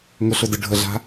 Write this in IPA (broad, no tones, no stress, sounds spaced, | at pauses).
ŋ ɵ ɬ ɵ d ɯ ɖʱ ə ɮ a̤